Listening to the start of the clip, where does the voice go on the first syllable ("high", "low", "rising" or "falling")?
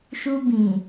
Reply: high